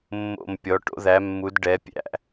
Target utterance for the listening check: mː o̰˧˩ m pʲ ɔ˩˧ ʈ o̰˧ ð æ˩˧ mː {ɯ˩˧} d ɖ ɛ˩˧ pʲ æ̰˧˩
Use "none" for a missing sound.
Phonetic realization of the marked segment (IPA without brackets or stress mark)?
u˩˧